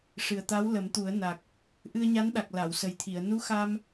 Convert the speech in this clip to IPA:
ʂ ɨ˨˩ ə̯ t̪ a˧˥ w l ə˨˩˦ m t̪ u˨˩˦ ə̯ n a˨˩ k̚ | ʔ ɨ˧ ə̯ ɲ a˧˥ n ɗ a˨˩ k̚ l a˨˩˨ w s ə˨˩ j t̪ʰ i˨˩˨ ə̯ n u˧˥ x a˧ m

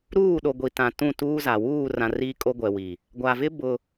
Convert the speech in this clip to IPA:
ɾ uː˦˨ ɗ o˨ ɡʷ i˨ t ã˨ t ũ˦˨ t uː˦ z a˨ w uː˦˨ r ã˨ r iː˦ kʼ o˦ ɡʷ ɛ˨ w i˨ | ɡʷ a˨ v ɪ˦ b ʊ˦

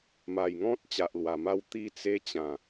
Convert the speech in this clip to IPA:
m a˨˩ j ŋ ɔ̃˦ t̚ t͡ɕ a˨ ʔ l w a˨˩ m a˥˧ w t̪ i˥˧ t͡s e˦ t͡ɕ ã˨˩

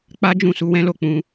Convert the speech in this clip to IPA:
k͡p a˦ d͡ʒ ũ˦˨ s u˧ w ɛ̃˦ l o˦˨ k͡p ũ˧

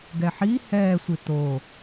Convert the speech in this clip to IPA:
ɡ ɛ ħ i h ɛː sʷ i t o

